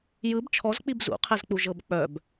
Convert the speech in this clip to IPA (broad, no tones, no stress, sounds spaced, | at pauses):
j ɯ b t͡ʃʰ ɔ z k͡p i b z ṵ qʰ ɛ z k͡p u ʒ ɤ b k͡p œ b